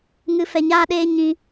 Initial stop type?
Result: implosive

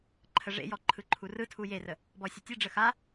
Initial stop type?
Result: click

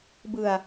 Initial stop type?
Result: plain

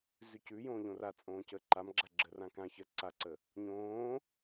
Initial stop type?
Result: plain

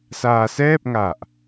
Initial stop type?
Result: plain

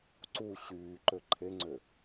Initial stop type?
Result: click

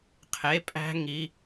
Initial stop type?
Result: aspirated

